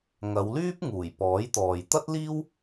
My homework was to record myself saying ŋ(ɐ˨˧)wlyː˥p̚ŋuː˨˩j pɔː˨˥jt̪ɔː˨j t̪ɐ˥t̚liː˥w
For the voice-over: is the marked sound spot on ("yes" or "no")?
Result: yes